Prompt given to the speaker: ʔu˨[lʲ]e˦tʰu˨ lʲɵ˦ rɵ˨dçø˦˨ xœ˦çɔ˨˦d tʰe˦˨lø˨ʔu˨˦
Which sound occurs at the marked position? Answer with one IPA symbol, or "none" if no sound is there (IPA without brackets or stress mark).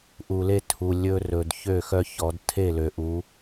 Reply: l